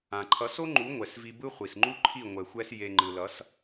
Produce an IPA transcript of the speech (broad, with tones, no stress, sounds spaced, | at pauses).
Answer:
ã˨ ǃʰ ʌ˨˦ s o˦ ŋ͡ǃ u˨˦ ŋʷ ɛ˨ s v i˧ b ɯ˦ χʷ i˨ s ŋ͡ǃ u˦ ǃʰ i˦˨ ŋʷ ɛ˨ xʷ ɛ˧ s j e˨ ŋ͡ǃ ɯ˨ l ʌ˨˦ s